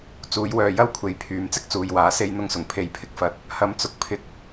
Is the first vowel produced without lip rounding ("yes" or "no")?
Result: no